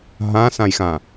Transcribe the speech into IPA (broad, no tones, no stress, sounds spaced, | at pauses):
ɦ ã s ã j x ã